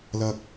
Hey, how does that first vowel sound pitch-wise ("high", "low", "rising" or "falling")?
high